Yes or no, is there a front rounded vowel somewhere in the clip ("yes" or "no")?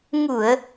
no